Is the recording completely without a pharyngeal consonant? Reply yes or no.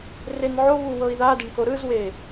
no